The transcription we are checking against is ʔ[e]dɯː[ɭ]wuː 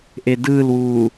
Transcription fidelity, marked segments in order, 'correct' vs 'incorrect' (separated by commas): correct, incorrect